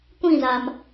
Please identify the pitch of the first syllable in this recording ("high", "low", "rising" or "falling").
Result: falling